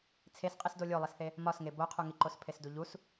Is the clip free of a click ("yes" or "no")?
no